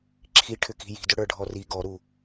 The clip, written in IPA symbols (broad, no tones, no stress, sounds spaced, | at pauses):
ǁʰ i ʈʰ ʏ k i̤ j i̤ d ʏ ɽ ə˞ ɖʱ ɔ r i ɡ ɔ ɾ u